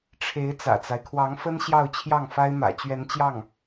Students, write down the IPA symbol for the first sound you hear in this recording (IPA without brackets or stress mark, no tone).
ʈ͡ʂʰ